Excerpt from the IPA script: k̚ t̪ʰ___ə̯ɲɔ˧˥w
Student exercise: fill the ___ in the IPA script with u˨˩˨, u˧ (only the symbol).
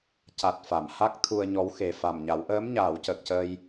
u˧